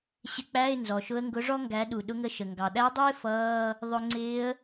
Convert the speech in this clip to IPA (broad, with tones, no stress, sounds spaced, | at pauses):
ɕ ɪ˧ k͡p æ˧˥˧ ɪ̯ n z ɔ˩ ʃ ʊ˧˥ ə̯ ŋ ɡ ʊ˧˥ ʐ ɔ˥ ŋ ɡ æ˩˥ ɗ u˩ ɗ ʊ˧˥ ŋ ə˧˥˧ ʃ ə˩ ŋ ɡ ɑ˩ ɗ æ˧˥ dˤ ɪː˥ f ʌː˧˥˧ | ðˤ ʊ˧ ŋ͡ǀ ɪː˧˥ ə̯